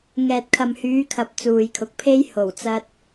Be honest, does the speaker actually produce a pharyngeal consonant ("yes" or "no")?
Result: no